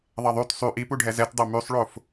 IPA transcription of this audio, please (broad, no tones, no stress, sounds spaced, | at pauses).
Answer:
ðˤ ɐ ðˤ y t sˤ y ʔ i p u ɖʱ ɛ z ɛ t dˤ o m y sˤ ɭ o f